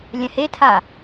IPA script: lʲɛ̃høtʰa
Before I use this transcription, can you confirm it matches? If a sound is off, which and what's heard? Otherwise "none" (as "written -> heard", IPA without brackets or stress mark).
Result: ø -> e